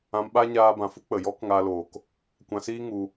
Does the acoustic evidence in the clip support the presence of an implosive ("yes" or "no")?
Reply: yes